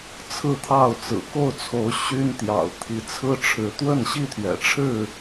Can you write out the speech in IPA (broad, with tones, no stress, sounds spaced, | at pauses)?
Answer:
t͡sʰ ɹ̩˥˨ t̪ʰ ɑ˥˨ ʊ̯ t͡s ɹ̩˨˩ k o˥˨ ʊ̯ t͡sʰ o˨˦ ʊ̯ ɕ y˦ n t̪ j ɑ̰˨˩ ʊ̯ t̪ʰ i˨˦ t͡sʰ ɹ̩˦ ʈ͡ʂʰ ɻ̩˨˦ t̪ w ə˥˨ n ɕ i˥˨ t̪ʰ ɥ ɛ̰˨˩ ʈ͡ʂʰ ɻ̩˥˨